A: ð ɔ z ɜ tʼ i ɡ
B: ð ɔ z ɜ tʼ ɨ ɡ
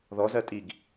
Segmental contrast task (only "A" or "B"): A